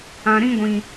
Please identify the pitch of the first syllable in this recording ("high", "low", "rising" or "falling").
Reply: low